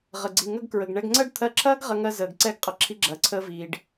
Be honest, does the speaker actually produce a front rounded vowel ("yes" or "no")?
no